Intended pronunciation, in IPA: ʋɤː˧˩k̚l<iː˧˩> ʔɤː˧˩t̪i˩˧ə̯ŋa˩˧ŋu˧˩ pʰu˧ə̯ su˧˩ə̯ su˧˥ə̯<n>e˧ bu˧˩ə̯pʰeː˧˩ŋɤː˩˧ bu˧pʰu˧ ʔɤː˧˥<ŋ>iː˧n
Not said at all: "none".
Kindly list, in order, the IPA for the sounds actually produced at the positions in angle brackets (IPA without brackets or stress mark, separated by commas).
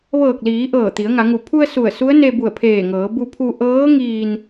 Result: iː˩˧, n, ŋ